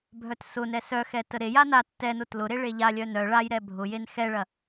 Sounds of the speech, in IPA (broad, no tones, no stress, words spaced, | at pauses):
bʱœtsʊnɛ sœxɛ təɾeja na tːɛnʊ tlʊɾe ɭeʎalʲœ nœ ɭajɾɛ bʱʊ jenxɛɭɐ